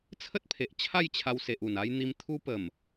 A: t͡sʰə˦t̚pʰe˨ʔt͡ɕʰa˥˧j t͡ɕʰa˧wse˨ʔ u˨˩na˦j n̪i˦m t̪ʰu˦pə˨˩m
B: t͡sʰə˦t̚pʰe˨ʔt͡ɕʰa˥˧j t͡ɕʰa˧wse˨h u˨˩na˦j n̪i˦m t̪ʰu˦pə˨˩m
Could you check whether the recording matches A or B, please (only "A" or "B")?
A